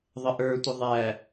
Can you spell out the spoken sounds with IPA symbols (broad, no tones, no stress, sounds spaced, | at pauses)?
ðˤ ə ʔ ə˞ tʷ ə ðˤ æ